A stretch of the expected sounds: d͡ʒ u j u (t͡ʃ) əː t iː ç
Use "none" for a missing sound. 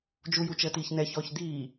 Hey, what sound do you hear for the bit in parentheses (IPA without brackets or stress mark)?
t͡ʃ